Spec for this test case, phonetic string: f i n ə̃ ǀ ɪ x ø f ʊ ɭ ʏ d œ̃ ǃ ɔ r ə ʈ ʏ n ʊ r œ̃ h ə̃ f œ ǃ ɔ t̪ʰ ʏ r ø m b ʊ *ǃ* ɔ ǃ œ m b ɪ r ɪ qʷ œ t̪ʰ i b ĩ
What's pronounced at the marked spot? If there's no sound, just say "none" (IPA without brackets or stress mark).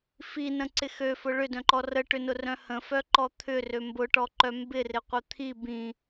ʈ